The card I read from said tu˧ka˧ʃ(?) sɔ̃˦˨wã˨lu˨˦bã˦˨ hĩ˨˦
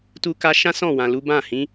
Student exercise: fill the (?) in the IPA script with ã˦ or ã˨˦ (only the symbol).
ã˦